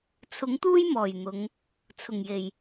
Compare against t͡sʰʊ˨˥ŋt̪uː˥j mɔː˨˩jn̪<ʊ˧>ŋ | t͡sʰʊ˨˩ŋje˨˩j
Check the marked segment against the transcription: incorrect: ʊ˨˧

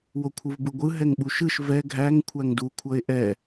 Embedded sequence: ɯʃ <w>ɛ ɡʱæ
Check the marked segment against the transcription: incorrect: v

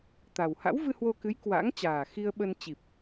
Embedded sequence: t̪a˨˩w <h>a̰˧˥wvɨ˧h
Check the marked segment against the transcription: correct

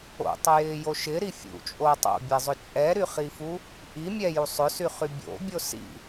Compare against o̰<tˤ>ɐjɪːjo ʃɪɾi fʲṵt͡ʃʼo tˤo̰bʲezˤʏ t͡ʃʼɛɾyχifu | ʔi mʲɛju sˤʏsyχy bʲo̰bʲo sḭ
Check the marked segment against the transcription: correct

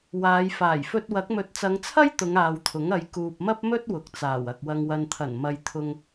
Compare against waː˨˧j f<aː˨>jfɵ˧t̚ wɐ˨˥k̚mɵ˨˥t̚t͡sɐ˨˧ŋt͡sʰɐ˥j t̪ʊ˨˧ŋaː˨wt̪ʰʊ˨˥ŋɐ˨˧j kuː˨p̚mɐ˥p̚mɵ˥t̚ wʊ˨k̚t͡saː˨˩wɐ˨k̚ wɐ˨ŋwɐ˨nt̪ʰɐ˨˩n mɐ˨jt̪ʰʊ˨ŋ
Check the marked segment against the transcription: incorrect: aː˨˩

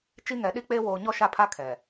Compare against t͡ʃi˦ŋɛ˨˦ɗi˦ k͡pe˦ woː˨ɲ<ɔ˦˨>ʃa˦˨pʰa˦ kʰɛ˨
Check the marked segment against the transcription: correct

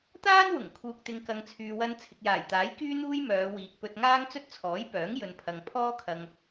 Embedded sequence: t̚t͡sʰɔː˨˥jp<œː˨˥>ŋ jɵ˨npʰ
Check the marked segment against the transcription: correct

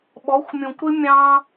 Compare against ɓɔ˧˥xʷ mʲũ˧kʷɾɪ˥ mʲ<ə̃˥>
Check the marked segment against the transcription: incorrect: ɑ̃˥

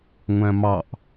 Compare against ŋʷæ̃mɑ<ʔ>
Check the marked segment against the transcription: correct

